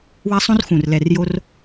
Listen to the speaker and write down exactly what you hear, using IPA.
w a˦ sˤ õ˦ r x ũ˨˩ r l ɛ˨˩ r j o˦ r

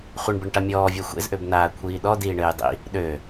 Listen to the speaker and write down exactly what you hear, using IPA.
χʷ ɘ ɳ b ɘ ɳ ʈ a mʲ ɔː vʲ a xʷ ḛ z ʔ ø b n̪ aː kʷʰ iː ɗ ɔ d iː ɳ ɘː j dˤ ḭ | ɗ ø

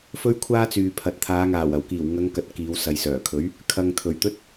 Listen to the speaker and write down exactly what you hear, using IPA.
f ɵ˥ ɥ kʷʰ aː˥ t͡s yː˨ pʰ ɐ˨ t̚ t̪ʰ aː˨˧ ŋ aː˨˩ w ɐ˨˩ w k iː˨˩ w ŋ ɐ˨˧ ŋ k ɐ˨ t̚ k iː˨˧ w s ɐ˨ j s œː˨˩ kʰ ɵ˨˥ ɥ | kʰ ɐ˨ ŋ t̪ʰ ɵ˨˩ ɥ t̪ ɵ˥ t̚

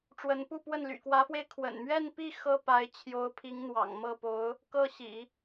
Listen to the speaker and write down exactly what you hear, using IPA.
ʈ͡ʂ w ə˧˥ n p u˥˧ p w ə˥˩ n l y̰˨˩ k w ä˧˥ f w e˧ ɪ̯ kʰ w ə̰˨˩ n m ɥ ɛ˥˧ n p i˥˩ x ɤ˥ p a˧˥ ɪ̯ t͡ɕʰ j o˧˥ ʊ̯ pʰ i˧˥ ŋ n̪ w ɑ̰˨˩ ŋ m ɤ˥˩ p o˧˥ ʊ̯ | k ɤ˥˩ ɕ ḭ˨˩˦

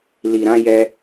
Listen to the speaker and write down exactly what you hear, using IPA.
l i˨ ɾ ã˨˦ j ɛ˧

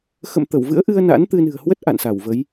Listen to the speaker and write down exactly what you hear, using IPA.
x ə̰˧˨ m t̪ ə˧˩ w v ɨ̰˧˥ ə̯ ʔ ɨ˧ ə̯ n a̰˧˥ n t̪ ɨ˧ n ɨ̤˨˩ ə̯ h w ə˦˥ t̚ ʔ a̰˧˨ n s a˧˩ w v ə˨˦ j

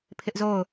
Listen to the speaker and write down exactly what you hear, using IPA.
pʰ ɪ˦ ʔ z o˦˨ ʊ̯

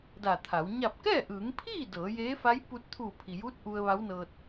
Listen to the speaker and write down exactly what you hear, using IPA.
d a˧˩ t̪ʰ a˩˧ w ɲ a˧˩ p̚ k ɛː˥˨ ʔ ɯː˩˧ ŋ pʰ iː˥˨ d ɤː˩˧ j eː˧˥ f a˧˥ j p u˧ t̚ t̪ʰ uː˧˩ pʰ i˩ j uː˧˥ t̚ ʔ u˧ ə̯ ʋ a˧˥ w n ɤː˧ t̚

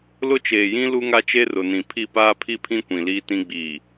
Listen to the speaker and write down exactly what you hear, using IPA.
l ʊ˦ t͡ʃ eː˨ j ĩ˦ l u˦ ŋ a˦ t͡ʃ e˦ r ʊ˨ n ĩ˨ pʰ i˦˨ p aː˦ pʰ i˦ pʰ ĩ˦ kʷ ĩ˨ l iː˦ t ĩ˦ ɡ͡b iː˨

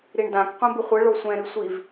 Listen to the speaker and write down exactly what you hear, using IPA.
ɾ i ɳ d ã k qʷ ɛ̃ b ɨ χʷ ɨ ɭ o sʷ ɛ̃ ɾ ɨ sʷ i v

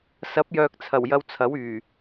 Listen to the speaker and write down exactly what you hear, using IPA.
s ɐ˨˥ p̚ j œː˨ k̚ t͡sʰ ɐ˨˩ w j ɐ˧ w t͡sʰ ɐ˨˥ w yː˨˩

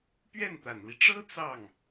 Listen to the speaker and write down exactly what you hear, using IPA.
p ɥ ɛ˥˩ n t̪ a˨˩ n l i˦ ʈ͡ʂ ɤ˥ t͡s ɑ˥˩ ŋ

